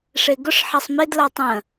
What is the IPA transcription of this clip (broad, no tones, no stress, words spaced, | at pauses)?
ʂeɡʊʂ ħasˤmed latˤə̃